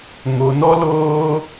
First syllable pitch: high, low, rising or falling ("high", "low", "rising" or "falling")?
low